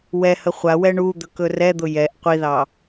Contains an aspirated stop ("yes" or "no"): no